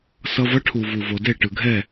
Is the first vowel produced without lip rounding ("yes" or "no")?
yes